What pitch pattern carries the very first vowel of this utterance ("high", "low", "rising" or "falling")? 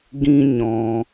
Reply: high